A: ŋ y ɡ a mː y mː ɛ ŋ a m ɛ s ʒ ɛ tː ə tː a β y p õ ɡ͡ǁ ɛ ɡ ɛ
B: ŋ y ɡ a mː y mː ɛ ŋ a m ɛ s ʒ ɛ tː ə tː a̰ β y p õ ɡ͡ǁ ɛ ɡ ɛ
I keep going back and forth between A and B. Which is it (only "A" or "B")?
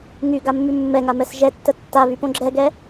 A